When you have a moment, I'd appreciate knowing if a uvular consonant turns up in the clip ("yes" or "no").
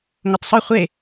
yes